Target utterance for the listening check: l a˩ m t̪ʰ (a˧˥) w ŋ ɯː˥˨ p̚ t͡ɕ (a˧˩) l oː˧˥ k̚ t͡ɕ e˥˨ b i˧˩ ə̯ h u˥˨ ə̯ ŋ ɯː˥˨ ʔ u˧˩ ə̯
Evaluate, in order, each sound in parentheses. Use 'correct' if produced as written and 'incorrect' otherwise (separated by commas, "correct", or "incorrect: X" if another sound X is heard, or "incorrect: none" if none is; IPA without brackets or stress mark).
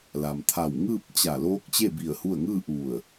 incorrect: a˧˩, correct